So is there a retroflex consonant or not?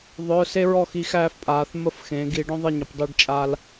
yes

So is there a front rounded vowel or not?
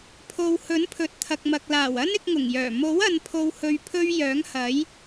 yes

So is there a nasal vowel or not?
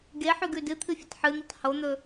no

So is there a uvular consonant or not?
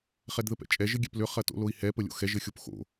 yes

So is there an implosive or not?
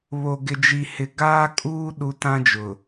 yes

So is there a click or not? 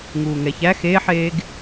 no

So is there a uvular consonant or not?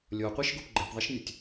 yes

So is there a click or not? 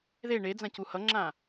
yes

